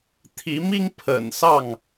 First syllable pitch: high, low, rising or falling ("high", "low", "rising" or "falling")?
rising